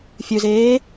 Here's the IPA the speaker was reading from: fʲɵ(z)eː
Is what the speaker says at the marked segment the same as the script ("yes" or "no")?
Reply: yes